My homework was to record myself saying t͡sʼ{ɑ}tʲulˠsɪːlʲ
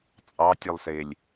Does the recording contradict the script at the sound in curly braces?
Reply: no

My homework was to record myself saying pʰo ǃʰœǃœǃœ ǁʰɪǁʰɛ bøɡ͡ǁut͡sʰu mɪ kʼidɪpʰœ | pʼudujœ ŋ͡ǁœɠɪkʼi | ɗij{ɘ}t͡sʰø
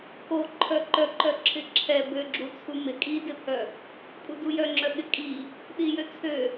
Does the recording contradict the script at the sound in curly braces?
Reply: yes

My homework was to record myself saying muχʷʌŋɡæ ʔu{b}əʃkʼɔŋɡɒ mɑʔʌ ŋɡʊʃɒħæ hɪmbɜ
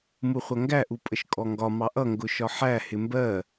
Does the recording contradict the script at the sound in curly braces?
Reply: yes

